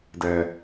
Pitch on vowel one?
low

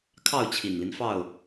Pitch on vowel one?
falling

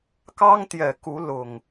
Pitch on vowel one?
high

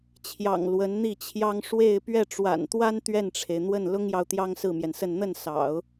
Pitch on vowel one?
low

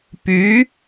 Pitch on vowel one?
rising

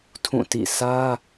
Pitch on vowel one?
falling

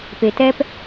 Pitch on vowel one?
low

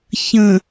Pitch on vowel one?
low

